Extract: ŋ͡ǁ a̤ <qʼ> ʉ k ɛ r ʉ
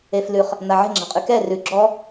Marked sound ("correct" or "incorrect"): correct